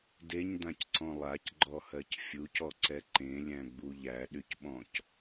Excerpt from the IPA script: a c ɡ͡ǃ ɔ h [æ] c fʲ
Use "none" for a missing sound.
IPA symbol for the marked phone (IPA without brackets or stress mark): ɜ